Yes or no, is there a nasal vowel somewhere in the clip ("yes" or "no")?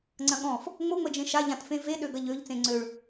yes